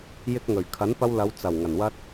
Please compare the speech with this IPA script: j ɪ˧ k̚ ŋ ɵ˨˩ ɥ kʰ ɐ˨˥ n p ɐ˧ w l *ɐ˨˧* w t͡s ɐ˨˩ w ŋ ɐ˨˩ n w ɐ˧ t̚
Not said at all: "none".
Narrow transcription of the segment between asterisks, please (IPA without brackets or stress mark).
ɐ˨˧